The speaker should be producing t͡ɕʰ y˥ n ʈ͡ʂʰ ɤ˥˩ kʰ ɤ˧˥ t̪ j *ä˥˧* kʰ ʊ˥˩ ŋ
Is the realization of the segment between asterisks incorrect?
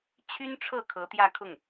no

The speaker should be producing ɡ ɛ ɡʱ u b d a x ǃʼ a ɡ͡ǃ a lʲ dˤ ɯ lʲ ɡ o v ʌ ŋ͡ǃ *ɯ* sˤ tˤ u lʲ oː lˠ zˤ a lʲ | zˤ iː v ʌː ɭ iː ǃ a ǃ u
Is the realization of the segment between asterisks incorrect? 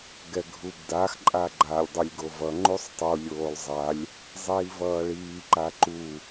yes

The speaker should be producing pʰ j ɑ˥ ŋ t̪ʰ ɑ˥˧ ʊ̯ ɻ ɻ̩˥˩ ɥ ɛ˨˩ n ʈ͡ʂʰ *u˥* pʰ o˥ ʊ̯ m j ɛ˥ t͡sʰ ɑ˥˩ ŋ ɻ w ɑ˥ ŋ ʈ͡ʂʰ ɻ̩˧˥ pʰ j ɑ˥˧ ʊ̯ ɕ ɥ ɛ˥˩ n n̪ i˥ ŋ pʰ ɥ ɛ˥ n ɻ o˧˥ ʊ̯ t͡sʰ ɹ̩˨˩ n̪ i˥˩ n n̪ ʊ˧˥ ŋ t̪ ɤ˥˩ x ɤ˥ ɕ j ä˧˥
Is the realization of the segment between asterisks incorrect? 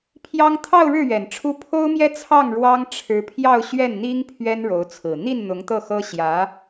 no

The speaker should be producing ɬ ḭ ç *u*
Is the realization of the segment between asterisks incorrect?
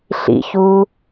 no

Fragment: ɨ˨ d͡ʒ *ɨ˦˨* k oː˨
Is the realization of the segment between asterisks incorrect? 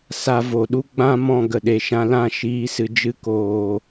no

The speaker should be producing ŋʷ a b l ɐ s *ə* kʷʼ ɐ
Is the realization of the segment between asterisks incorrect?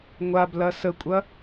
no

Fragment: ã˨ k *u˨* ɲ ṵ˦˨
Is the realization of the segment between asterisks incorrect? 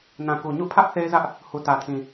no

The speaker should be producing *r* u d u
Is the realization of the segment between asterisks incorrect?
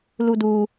yes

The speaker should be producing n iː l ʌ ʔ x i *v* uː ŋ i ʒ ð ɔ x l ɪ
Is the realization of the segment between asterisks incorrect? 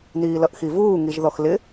no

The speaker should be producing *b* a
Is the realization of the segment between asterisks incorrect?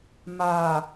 yes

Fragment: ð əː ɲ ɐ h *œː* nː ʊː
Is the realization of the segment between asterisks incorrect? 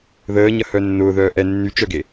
yes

